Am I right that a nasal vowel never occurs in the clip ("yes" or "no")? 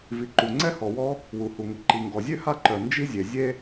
yes